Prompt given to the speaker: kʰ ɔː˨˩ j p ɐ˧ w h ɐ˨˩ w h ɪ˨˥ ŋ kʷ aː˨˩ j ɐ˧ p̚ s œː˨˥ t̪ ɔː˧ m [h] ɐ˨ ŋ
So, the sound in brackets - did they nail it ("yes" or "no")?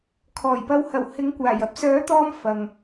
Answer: no